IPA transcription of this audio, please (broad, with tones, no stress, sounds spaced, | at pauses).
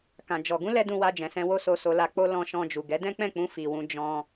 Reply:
k ã˧ d͡ʒ ɔ˧ ɡ ũ˦ l ɛ˧ d ũ˧ w a˧ d͡ʒ ɛ̃˨ s ɛ̃˧ w o˦ s o˧ s o˧ l a˧ k͡p o˦ l ɔ̃˧ ʃ ɔ̃˧ d͡ʒ u˨ ɡ ɛ˨˦ d ɛ̃˦ k͡p ɛ̃˦˨ k͡p ũ˧ f i˨ w ũ˧ d͡ʒ ɔ̃˧